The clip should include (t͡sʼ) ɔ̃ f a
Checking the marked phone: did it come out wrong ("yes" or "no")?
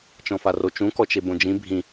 yes